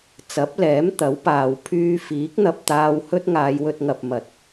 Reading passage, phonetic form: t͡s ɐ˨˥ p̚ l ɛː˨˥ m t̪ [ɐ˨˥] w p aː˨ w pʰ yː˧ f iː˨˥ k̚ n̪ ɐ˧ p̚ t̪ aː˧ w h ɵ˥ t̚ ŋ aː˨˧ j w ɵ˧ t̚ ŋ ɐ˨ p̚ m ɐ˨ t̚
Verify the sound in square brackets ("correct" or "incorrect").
correct